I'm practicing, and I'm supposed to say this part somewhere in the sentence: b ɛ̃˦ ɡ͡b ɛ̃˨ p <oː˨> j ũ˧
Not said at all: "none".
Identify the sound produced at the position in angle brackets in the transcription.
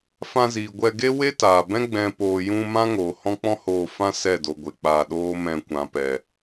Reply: oː˨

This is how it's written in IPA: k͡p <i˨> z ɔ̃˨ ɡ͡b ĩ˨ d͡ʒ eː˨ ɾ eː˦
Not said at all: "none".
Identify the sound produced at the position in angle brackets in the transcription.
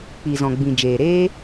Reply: i˨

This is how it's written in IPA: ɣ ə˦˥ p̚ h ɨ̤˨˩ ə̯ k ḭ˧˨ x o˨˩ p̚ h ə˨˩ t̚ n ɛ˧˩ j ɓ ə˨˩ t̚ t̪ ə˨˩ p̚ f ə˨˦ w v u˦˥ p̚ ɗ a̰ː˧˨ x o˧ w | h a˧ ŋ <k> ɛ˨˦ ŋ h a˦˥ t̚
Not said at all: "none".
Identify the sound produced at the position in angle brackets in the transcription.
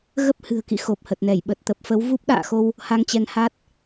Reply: t͡ɕ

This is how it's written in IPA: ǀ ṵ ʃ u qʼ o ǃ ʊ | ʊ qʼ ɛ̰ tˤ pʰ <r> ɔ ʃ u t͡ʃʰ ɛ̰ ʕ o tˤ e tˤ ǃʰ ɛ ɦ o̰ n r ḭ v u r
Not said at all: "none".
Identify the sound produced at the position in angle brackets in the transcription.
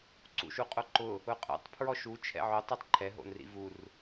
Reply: ɹ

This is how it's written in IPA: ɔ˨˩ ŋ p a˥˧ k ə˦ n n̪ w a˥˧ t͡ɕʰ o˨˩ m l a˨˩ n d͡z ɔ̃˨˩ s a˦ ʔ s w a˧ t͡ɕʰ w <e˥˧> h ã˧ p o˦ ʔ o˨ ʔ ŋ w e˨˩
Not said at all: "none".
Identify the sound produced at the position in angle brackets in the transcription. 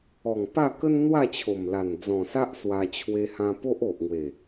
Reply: e˧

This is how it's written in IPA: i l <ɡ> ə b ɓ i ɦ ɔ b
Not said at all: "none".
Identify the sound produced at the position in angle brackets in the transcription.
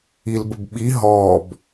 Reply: b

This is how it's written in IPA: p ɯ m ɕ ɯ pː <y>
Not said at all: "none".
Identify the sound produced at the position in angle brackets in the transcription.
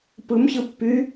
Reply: y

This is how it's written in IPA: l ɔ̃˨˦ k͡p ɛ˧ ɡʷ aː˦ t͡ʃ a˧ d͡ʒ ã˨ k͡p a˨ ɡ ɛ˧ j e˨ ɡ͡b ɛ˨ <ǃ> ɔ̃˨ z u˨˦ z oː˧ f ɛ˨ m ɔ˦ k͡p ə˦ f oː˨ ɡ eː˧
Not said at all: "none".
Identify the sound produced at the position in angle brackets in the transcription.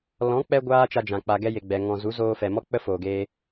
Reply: ŋ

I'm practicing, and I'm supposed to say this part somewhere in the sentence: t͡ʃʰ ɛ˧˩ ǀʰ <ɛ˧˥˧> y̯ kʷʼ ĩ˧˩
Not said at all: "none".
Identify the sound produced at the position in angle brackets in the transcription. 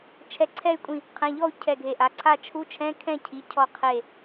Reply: ɛ˥˨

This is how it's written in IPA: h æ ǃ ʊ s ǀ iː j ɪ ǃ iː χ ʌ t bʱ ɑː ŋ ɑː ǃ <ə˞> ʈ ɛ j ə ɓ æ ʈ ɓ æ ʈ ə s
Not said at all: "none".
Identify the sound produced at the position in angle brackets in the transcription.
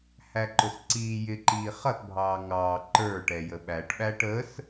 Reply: ə˞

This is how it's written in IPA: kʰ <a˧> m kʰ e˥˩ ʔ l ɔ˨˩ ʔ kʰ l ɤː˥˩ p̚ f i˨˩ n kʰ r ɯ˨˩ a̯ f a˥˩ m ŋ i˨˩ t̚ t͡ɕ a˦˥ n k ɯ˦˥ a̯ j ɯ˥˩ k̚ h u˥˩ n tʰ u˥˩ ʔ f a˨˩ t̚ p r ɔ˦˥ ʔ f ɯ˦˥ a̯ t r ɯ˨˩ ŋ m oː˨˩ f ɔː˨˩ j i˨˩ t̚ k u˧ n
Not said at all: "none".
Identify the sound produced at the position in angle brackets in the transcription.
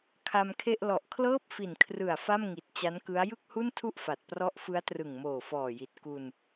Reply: a˧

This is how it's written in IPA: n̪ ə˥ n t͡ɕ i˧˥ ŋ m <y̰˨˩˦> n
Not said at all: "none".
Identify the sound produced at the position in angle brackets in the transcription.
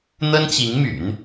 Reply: y̰˨˩˦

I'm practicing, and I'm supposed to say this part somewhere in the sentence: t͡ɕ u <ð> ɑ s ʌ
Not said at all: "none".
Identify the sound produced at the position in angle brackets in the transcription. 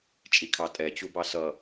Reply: b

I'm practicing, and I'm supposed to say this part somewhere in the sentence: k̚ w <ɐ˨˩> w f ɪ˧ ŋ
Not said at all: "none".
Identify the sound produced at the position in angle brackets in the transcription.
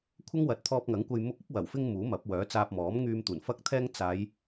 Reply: ɐ˨˩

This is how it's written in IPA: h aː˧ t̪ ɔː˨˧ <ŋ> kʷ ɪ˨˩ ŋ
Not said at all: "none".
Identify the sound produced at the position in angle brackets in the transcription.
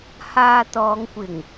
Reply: ŋ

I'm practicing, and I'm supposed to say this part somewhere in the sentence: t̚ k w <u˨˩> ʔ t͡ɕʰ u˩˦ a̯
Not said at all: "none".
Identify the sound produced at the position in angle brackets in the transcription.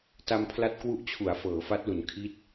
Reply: u˦˥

